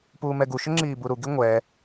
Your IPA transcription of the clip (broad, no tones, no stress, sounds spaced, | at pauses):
p uː m ɛ ɡ u ʃ ʏ ŋ͡ǁ iː b u ɾ u ɡ i ŋʷ ɛ